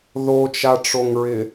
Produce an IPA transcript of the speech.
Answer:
ðot͡ʃaʈ͡ʂoŋɹɪ

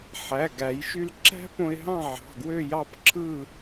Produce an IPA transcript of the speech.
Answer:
ħæ˩˧˩ɡæ˨˩˦jʃy˧lǁæ̤˥ põ˧ɪ̯ɦɑ̃˥˨ʕɑ̤˩˧˩ ɡwø˥˨jɑ˥˨pǁʰɯ˥˨

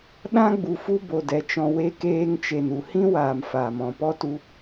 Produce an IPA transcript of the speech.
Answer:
ɗã˦ɡ͡bu˨ fu˦bo˨ dɛ˧t͡ʃɔ̃˧ we˧keː˧ŋt͡ʃe˨n u˨hĩ˦waː˨m faː˨ mɔ̃˨pɔ˦tu˧

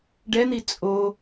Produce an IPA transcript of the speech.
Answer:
ɖɛn̪i t͡sʼo

